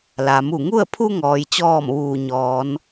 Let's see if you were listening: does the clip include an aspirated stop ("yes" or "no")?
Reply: yes